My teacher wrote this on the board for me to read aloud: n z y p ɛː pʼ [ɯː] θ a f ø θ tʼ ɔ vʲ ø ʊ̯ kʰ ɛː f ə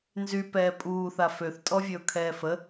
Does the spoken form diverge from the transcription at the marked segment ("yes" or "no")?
yes